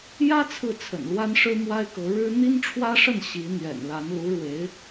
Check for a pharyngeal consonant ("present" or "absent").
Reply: absent